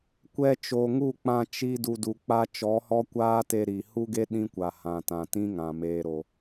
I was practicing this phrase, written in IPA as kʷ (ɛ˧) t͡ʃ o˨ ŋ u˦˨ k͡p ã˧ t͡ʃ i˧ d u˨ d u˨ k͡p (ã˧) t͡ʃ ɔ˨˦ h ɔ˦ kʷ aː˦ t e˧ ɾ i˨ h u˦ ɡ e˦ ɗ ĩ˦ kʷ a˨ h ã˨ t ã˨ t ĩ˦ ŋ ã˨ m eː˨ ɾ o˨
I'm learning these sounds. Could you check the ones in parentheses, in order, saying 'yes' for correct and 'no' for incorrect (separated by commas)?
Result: yes, no